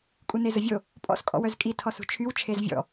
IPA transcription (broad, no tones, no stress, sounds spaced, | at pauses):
kʼ u n e z ə vʲ o | pʼ ɔ̰ s kʼ ɔ̰ w œ z kʼ i tʰ ɔ s ṳ t͡ʃʰ y w t͡ʃʰ e z vʲ ɔ̰